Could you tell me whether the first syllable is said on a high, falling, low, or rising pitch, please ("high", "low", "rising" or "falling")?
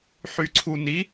low